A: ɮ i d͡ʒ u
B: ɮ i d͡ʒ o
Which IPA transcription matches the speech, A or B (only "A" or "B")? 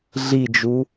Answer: A